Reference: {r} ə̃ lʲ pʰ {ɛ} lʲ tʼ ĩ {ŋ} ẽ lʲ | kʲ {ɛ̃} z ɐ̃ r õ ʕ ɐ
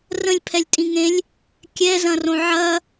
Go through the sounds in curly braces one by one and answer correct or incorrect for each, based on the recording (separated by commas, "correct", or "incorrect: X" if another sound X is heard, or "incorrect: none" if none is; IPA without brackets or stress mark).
correct, correct, correct, incorrect: ɛ